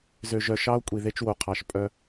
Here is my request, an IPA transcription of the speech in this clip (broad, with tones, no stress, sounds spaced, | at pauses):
z ø˨ ʒ œ˨ ʃ ɑ˦ o̯ kʷʼ i˨ ð e˦ t͡ʃ w o˨ qʰ ɑ˨ ʃ pʼ œ˦